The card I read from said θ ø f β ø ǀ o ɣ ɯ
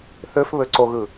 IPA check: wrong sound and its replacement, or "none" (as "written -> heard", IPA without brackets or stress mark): none